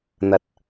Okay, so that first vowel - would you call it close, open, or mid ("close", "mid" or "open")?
open